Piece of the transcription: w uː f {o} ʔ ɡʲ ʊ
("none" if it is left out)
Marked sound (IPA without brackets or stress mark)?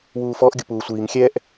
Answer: ɔ